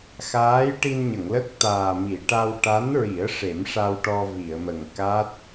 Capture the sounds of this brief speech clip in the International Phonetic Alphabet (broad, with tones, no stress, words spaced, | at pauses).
xaː˧˥j ʈi˧nɲə˨˩˨ŋlə˦˥k̚ t̪aː˨˩mi˨˩˨ ʈa˧w ʈa˧˥nɹi˨˩˦ə̯ ʂe˨˩˦mʂa˧wʈɔ˧ vi˨˩˨ə̯mə˨˩ŋ ka˦˥t̚